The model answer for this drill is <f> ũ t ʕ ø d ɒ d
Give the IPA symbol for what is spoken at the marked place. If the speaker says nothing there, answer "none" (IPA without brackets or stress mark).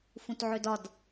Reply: f